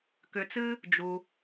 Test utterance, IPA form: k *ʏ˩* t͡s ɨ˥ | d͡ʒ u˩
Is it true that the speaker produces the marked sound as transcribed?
yes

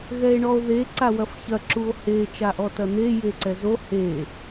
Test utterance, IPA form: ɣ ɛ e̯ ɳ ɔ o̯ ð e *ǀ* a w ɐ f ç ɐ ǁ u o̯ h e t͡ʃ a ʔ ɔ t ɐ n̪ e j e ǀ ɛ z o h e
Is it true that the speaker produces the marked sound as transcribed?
yes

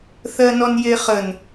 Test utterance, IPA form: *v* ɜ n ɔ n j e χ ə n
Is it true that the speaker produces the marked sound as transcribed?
no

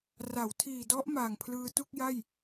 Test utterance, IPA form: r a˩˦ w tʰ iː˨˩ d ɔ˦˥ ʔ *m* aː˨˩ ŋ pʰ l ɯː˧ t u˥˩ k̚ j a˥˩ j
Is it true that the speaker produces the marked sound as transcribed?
yes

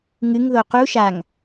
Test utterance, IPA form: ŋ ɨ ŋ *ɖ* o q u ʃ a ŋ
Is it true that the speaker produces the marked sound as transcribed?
no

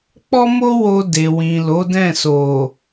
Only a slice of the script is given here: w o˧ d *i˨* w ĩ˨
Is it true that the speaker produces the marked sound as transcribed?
no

